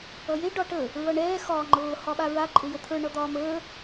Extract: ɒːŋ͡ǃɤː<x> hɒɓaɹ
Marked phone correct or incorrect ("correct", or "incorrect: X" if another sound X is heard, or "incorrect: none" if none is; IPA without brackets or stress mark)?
incorrect: none